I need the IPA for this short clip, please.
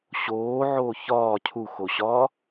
ɕ oː ʕ oː ç ɒː cʰ u x o ɕ ɒː

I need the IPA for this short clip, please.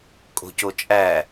kʼ o̤ c o t͡ʃʼ æ

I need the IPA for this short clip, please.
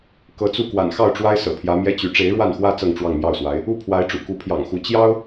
k ɤ˧˥ t͡s u˥˩ k w a̰˨˩ n x ɑ˥˩ ʊ̯ ʈ͡ʂ w a˥ ɪ̯ s ɤ̰˨˩ pʰ j ä˧˥ m j ɛ˥ t͡ɕ y˧˥ ʈ͡ʂ e˧˥ ɪ̯ ɻ w a˥˩ n x w ä˥ t͡s ɤ˥˧ ŋ ʈ͡ʂ w ɑ˥˧ ŋ m j ɑ˥˩ ʊ̯ s w a˧˥ ɪ̯ | u˥˩ pʰ w a˧˥ ɪ̯ ʈ͡ʂ ṵ˨˩ k u˧˥ pʰ j ɑ̰˨˩ ŋ x u˧˥ t͡ɕ j ɑ˥ ʊ̯

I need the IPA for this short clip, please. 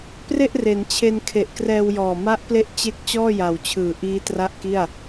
p r e˥˩ ʔ r e˩˦ n t͡ɕʰ e˧ n kʰ e˨˩ ʔ k r ɛː˧ w j ɔː˨˩ m a˦˥ ʔ p l e˦˥ ʔ t͡ɕ e˦˥ k̚ t͡ɕ ɔː˥˩ j a˨˩ w t͡ɕʰ ɯː˨˩ ʔ iː˦˥ t r a˥˩ ʔ k i˥˩ a̯

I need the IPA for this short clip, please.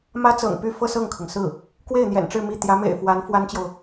m ä˥ t͡s ɤ̰˨˩ ŋ p y˥˧ f ɤ˥˧ s ɤ˥˩ ŋ kʰ ɤ˩ ŋ s ɹ̩˥˩ | k w e˥˩ ɪ̯ n̪ j ɛ̰˨˩ n ʈ͡ʂ ɻ̩˥˧ m i˥˩ t̪ j ä˧˥ m ḛ˨˩ ɪ̯ f w a˧˥ n f w a˥ n t͡ɕ j o˨ ʊ̯

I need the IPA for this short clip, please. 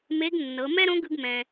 m e˧˥ ɡ nː ɤ˩˧ m ɛ˥ ɾ õ˧˥ ɡ ɯ˧ ɡ m ɛ̃˩

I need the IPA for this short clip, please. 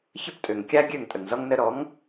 ç ə˦˨ p tʼ ø˨ ŋ kʲ a˦ ɡʲ ø˦˨ ŋ tʼ ə˨ ŋ z ɔ˧ ŋ n ə˧ ɾ ɔ˨˦ ŋ

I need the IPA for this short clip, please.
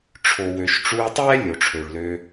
ʈ͡ʂʰ o˨ w ø˨ ʃ ʈ͡ʂ u˧ tˤ ɛ˦ lʲ o˨ ʈ͡ʂʰ ø˨ ɭ l ø˦

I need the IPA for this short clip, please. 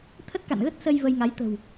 t̪ʰ ə˦˥ t̚ k a̰˧˨ n ɣ ə˦˥ t̚ s ə˧ j v ə˧ j ŋ a˨˦ j t̪ ə̤˨˩ w

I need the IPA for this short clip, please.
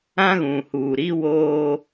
ã˦ ɣ ũ˨ h uː˨ ɾ i˦ w oː˦

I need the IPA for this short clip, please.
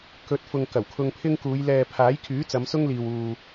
k ɵ˨˥ t̚ f ʊ˨ ŋ k ɐ˨˩ w kʰ ʊ˧ ŋ pʰ ɪ˥ ŋ k uː˨˧ j l ɛː˨ pʰ aː˨˥ j kʰ yː˨˥ t͡s ɐ˨˧ m s ʊ˥ ŋ l iː˨ w uː˨

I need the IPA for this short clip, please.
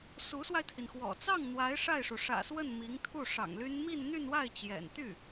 s u˧˥ s w a˧ ɪ̯ t̪ʰ i˩ n x w ɔ̰˨˩ t͡s ɑ˥˩ ŋ n̪ w a˧˥ ɪ̯ ʂ a˥˩ ɪ̯ ʂ u˩ ʂ ä̰˨˩ s w ə˥˩ n m i˧˥ ŋ t̪ʰ u˥˩ ʂ ɑ̰˨˩ ŋ l y˥ n m i˥˧ n n̪ y˥˧ n w a˥˩ ɪ̯ t͡ɕ j ɛ̰˨˩ n t̪ y˥˩

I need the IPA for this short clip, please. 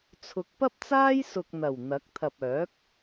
t͡sʰ ʊ˨˥ k̚ p ɐ˥ p̚ t͡s aː˥ j s ʊ˨ k̚ n̪ ɐ˨˩ w n̪ ɐ˨˥ k̚ t̪ʰ ɐ˨ p̚ œː˨˥ k̚

